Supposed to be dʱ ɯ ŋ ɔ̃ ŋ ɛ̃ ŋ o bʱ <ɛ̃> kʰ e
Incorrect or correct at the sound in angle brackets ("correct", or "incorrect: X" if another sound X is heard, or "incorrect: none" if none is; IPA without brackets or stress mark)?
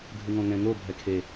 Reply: incorrect: ɛ